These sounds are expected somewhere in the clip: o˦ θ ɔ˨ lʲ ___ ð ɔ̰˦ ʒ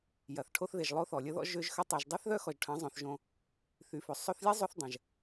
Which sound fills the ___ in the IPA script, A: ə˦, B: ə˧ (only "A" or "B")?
A